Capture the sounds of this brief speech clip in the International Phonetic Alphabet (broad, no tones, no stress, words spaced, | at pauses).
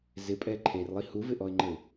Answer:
zɪpʼɛ ǃʰerlˠi huvɪʔɔɪ̯ŋ͡ǃəɪ̯